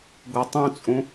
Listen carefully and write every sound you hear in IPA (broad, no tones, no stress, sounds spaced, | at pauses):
ɡ o tˤ ũ t͡sʼ ũ